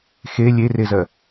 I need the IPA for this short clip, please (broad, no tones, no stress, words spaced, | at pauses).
xe lʲerezɜ